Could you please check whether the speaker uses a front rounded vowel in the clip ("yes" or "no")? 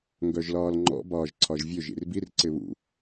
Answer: yes